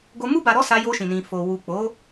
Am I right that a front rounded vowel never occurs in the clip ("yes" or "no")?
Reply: yes